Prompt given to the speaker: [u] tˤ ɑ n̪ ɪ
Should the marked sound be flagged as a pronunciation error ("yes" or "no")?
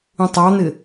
yes